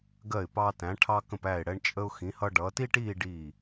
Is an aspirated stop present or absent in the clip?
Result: present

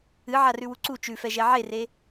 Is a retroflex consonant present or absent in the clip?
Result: absent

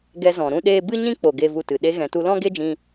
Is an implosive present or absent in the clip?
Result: present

